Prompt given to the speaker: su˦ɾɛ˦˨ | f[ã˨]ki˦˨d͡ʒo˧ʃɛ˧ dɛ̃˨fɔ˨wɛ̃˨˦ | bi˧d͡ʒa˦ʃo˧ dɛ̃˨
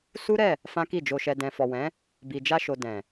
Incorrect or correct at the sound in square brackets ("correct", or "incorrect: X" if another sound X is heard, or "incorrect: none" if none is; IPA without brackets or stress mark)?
incorrect: ã˦